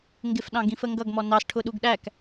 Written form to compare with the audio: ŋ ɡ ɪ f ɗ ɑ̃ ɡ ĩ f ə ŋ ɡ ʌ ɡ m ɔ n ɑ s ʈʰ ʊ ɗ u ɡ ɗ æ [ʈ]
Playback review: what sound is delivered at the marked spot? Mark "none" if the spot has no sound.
k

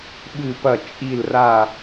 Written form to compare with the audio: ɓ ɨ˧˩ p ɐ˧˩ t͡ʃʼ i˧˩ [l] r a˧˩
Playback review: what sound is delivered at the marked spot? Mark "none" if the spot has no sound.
l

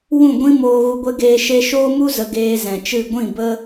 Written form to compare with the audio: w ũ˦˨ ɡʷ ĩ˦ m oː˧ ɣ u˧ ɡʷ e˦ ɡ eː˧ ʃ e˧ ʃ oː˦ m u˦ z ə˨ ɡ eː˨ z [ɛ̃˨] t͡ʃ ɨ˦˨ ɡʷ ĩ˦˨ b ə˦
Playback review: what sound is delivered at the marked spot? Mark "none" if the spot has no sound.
ɛ̃˨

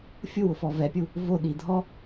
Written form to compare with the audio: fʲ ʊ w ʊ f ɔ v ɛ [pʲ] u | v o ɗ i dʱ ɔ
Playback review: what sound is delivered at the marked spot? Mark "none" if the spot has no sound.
pʲ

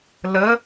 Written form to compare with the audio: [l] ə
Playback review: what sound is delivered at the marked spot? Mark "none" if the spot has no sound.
l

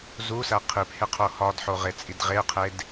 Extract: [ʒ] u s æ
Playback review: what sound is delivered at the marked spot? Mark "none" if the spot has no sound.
z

